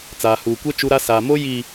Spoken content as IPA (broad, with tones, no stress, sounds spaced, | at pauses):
t͡s aː˨ h uː˨ kʷ ɛ˦ t͡ʃ u˦ ɾ a˦ s aː˨ m o˦ j i˨